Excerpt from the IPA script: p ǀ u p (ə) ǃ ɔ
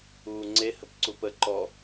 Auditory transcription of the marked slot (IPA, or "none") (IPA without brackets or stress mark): ə